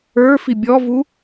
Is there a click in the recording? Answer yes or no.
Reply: no